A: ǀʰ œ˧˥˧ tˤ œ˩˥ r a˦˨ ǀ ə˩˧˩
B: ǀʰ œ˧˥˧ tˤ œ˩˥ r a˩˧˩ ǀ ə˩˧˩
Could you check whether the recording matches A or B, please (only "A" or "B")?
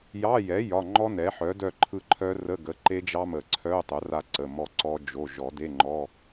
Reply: A